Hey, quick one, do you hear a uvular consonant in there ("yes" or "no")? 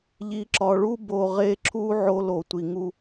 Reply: yes